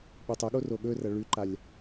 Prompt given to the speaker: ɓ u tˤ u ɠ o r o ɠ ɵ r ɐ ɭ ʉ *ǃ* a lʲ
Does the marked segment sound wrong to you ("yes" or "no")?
no